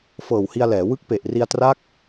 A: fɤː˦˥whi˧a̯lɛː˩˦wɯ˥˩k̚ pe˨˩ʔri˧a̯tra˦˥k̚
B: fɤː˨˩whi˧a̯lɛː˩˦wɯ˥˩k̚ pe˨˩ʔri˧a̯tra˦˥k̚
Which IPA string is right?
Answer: B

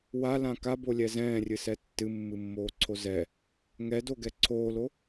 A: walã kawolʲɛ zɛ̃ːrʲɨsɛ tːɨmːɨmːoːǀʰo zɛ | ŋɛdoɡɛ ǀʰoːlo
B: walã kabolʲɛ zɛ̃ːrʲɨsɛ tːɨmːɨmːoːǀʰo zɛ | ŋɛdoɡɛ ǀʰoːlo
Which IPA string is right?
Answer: B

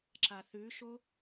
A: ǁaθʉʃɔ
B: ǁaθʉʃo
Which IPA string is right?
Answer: B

